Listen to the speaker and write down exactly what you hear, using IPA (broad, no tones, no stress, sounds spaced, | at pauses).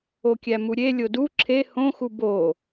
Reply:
o kʲ æ m u ɾʲ e lʲ o d u ǁʰ e h õ x u b o